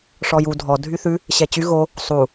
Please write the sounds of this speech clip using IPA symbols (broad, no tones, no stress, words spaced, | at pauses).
ʂɔju dʱɔ dʱyθʉ | ɕɛt͡ɕy ɣo | sˤu